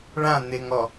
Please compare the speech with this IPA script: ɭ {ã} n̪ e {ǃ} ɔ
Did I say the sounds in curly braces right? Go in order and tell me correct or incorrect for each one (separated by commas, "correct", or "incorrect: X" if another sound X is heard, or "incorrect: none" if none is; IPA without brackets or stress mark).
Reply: correct, incorrect: ŋ